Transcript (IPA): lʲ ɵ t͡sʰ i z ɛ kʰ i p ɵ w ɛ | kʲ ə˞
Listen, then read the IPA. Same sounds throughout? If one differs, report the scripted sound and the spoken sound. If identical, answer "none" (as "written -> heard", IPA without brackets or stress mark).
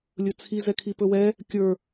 none